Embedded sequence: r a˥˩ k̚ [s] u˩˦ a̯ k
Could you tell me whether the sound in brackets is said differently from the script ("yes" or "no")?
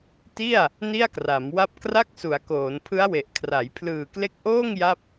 no